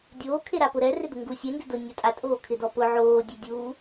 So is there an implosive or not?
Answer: no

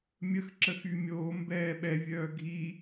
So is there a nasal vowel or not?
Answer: no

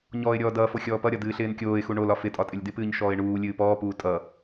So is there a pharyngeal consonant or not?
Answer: no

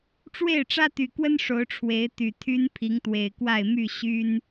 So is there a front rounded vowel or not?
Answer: yes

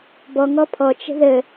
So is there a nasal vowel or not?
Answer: no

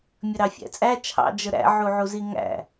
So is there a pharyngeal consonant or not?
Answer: yes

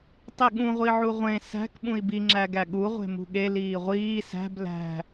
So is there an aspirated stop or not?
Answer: no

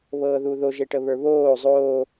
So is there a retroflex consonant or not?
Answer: yes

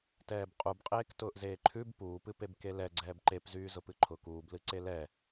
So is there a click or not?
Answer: yes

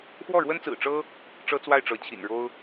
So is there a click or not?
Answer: no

